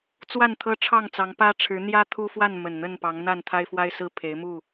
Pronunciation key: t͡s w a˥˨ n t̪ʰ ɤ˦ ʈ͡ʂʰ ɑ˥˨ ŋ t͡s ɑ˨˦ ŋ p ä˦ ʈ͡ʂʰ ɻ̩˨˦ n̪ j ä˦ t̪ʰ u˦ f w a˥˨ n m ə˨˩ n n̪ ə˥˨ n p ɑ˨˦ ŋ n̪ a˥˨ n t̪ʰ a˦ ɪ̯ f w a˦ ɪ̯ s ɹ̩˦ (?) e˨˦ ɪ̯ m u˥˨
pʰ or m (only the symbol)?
pʰ